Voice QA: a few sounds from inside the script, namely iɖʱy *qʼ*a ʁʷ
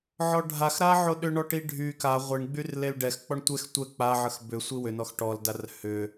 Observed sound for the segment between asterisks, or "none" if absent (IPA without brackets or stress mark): k